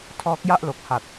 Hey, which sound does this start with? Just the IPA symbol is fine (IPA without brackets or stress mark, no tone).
tʰ